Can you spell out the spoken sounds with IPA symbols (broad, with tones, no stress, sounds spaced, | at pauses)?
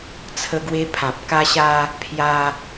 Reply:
t͡sʰ ə˧ ɡ w e˧ pʰ ã˨ p̚ k a˧ ɕ a˧ | pʰ j a˧